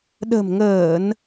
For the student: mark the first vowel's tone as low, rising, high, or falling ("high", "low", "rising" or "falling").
low